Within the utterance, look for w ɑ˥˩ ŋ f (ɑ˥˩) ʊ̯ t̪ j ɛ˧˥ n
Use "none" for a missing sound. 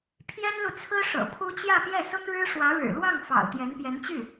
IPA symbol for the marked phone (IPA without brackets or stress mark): ɑ̰˨˩